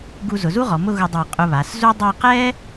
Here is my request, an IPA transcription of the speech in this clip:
ɡ u˧ z ʊ˩˧ z u˥ ʁ ɔ˩˧ m ʊ˥˧ ɣ ʊ˧ dˤ a˧˩ qʼ ʊ˧ β a˩˧ s z u˥ dˤ a˥˧ q ɛ˥

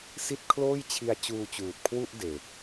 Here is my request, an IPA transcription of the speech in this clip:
s i˥˩ t̚ kʰ l oː˥˩ j t͡ɕʰ i˧ a̯ t͡ɕ uː˧ t͡ɕ uː˨˩ t̚ kʰ w u˥˩ ʔ d e˨˩ k̚

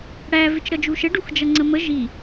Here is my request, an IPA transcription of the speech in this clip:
ɽ æ v ɪ t͡ʃ ɾ ʌ d͡ʒ u ʃ ə ɖ u x d͡ʒ ʌ ŋ͡ǀ ə m ə ʒ i

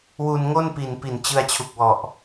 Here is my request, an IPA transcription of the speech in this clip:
w u˧ n ŋ o˥˩ n p i˨˩ n p i˨˩ n t͡ɕ ɯ˧ a̯ t͡ɕʰ u˨˩ k̚ w ɔ˨˩ ʔ

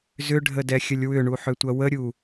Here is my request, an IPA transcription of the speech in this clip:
z ʏ ɖʱ ə d ɛ xʲ ə lʲ w ʏ ɳ u ħ ʏ tʷ ɐ w ə ɾʲ u

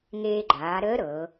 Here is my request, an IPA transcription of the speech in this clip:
ŋ eː˧ ɡ͡ǃ aː˩˧ ɾ əː˧˥ ɾ ɤ˩˧

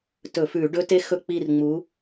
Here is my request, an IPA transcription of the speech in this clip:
t ɵ˧˩˧ f ʉ˧˩˧ ɖ ɵ˦˥ t e˦˥ x ɵ˦˨ k͡p i˦˨ r ŋ͡m u˨˦

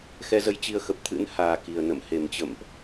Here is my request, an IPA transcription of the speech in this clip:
x ɛ˧ z ə˧ j t͡ɕ i˧ ə̯ x ə˨˩ p̚ t̪ʰ ɨ̰˧˥ n h aː˨˩ k i˨˩ ə̯ n ə̰˧˨ m h e˨˩ m t͡ɕ ə̰˧˨ m ʔ

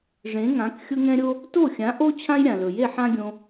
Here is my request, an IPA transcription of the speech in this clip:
ʐ ẽ˩˥ ŋ ã˩˥ k xʲ ʊ˥ ŋ ɛ̃˥ ɾʲ o˥ | t o˥˩ xʲ ã˩˥ ʔ o˥ t͡ɕʰ ã˥ j ɾʲ ã˩ l ɵ˩ j e˥˩ ħ ã˥ ɡʲ õ˧

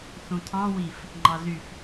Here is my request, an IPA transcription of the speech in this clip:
θ ũ tʰ ɑ̃ w i f | ŋ͡ǃ ɑ z y f

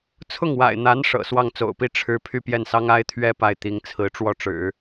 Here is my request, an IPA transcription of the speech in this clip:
t͡sʰ ʊ˥˩ ŋ w a̰˨˩ ɪ̯ n̪ a˧˥ n ʂ ɤ̰˨˩ s w ɑ˥˩ ŋ t͡s o̰˨˩ ʊ̯ p i˥˩ ʈ͡ʂʰ ɻ̩˥ pʰ y˥˧ p j ɛ˥˩ n s ɑ˥ ŋ a˥ ɪ̯ t̪ʰ ɥ ɛ˥ p a˥˩ ɪ̯ t̪ i˧˥ ŋ t͡sʰ ɹ̩˧˥ ʈ͡ʂ w ɔ˥˩ ʈ͡ʂ ɻ̩˨˩˦

